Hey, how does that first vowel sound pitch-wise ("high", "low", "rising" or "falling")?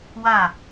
falling